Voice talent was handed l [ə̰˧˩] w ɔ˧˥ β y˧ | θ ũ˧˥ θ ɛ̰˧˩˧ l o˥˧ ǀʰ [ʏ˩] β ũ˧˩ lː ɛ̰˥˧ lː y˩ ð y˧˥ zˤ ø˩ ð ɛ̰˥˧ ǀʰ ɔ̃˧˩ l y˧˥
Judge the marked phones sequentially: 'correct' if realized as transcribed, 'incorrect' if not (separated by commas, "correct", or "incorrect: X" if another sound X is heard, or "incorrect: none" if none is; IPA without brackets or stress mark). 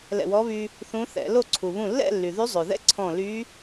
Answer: incorrect: ɛ̰˧˩, incorrect: u˩